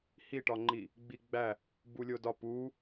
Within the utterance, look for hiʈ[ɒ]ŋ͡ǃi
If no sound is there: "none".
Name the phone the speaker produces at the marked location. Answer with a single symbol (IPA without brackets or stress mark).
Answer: ɒ